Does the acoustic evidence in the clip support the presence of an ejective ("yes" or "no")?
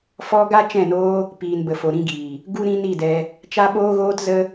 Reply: no